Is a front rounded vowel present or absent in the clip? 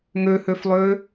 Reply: present